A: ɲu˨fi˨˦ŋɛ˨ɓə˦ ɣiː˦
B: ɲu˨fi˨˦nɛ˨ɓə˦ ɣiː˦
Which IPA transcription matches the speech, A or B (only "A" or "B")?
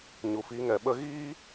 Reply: A